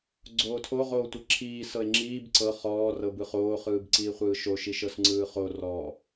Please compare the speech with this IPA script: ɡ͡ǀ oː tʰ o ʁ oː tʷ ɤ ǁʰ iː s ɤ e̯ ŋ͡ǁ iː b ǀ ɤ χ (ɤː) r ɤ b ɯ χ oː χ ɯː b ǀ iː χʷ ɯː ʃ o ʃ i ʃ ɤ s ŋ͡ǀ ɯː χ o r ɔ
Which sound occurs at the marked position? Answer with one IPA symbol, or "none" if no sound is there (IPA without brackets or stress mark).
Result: ɔː